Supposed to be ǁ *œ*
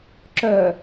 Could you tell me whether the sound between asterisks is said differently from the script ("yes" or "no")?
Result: no